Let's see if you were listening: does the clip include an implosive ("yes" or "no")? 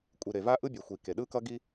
yes